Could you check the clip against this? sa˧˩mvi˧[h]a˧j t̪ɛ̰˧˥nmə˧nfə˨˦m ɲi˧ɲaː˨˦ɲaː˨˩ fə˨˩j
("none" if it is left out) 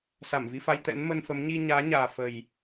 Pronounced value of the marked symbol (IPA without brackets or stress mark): f